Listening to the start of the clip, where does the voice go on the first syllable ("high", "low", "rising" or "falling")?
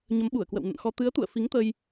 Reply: rising